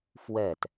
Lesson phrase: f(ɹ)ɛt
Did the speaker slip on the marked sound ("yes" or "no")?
yes